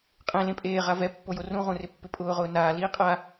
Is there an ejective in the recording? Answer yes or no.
yes